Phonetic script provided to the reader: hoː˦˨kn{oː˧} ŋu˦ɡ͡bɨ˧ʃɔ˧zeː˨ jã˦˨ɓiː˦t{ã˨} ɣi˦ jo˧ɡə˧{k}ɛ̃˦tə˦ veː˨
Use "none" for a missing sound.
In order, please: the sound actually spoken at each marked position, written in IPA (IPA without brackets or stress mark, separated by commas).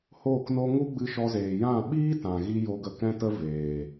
o˧, ã˨, k